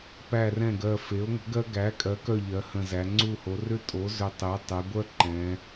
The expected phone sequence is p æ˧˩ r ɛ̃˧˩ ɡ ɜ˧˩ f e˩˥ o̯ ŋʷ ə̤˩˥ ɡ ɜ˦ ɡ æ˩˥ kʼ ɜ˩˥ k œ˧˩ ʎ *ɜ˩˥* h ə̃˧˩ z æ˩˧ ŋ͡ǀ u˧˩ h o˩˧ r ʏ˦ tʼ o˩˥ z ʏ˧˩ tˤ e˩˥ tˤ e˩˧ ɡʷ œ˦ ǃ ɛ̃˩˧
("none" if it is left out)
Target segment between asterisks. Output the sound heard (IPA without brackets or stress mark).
ɜ˩˧